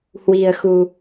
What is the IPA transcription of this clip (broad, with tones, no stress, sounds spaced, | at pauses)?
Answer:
h w i̤˨˩ ə̯ x ṳ˨˩